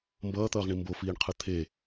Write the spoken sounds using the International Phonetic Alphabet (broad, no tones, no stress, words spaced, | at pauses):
mbʌːt̪ʌːʁɳi mbofiːɳqʰɯ t̪ʰe